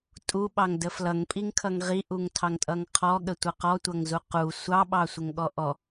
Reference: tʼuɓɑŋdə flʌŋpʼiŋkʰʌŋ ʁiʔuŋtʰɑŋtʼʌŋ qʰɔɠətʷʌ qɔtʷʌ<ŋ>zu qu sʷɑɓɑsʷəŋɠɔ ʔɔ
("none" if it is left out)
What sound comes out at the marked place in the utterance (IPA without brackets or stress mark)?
ŋ